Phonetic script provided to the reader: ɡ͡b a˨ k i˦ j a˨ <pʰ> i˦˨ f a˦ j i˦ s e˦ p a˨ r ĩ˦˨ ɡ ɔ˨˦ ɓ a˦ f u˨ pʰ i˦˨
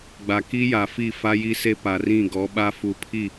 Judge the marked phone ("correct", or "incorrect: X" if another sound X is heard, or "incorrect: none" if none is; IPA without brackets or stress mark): incorrect: f